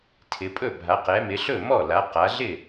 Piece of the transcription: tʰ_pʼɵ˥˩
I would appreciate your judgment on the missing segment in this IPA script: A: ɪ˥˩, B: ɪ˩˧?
B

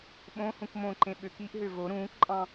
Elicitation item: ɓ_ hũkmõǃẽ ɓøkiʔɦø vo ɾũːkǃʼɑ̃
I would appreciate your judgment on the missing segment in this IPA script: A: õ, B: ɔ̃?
A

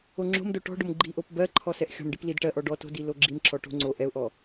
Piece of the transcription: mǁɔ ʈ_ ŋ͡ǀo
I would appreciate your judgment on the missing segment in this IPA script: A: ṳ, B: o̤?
B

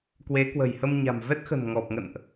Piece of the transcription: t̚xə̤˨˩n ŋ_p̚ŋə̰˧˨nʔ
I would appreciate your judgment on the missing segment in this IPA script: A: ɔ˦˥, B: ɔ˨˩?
B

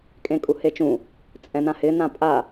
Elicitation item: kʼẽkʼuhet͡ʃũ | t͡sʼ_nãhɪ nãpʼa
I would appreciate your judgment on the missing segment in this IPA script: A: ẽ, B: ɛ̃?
B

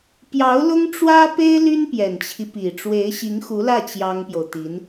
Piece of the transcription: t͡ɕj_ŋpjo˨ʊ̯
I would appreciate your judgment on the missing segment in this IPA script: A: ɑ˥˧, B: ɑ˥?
B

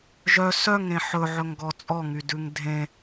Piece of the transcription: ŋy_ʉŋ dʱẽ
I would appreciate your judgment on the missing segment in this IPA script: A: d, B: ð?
A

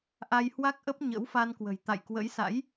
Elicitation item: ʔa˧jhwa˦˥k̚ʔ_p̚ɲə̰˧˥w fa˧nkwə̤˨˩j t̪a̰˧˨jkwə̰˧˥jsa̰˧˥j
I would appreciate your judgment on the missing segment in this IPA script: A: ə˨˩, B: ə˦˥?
B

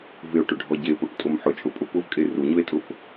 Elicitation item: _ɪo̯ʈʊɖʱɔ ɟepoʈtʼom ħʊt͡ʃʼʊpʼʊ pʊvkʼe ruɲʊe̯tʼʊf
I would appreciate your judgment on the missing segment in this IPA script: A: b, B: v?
B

